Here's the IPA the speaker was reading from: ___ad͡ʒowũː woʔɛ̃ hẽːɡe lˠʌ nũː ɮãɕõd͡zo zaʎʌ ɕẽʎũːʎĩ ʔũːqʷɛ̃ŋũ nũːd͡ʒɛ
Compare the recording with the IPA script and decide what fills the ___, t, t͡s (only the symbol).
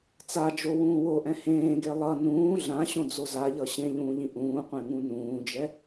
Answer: t͡s